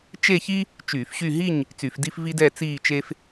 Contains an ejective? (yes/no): no